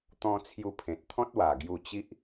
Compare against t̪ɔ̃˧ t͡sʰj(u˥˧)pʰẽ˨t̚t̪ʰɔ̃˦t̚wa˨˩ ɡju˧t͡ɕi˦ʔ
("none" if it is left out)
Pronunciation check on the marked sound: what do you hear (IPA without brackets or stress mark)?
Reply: u˧